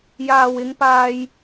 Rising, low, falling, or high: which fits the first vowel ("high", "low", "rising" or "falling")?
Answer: low